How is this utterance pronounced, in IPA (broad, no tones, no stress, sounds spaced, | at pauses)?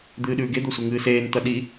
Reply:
d̪ ɨː ɗ ʉː ɡ e d̪ o sʷ e ŋ ɨː s eː n t̪ ɐ ɗ i